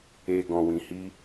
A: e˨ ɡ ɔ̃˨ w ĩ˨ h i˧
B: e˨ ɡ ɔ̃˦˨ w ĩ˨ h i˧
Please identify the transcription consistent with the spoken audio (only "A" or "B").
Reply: A